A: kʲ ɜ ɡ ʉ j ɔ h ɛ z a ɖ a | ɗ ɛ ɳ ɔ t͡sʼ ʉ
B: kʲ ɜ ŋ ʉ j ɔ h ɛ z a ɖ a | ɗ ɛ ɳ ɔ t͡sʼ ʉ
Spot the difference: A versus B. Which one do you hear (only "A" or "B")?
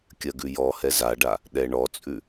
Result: A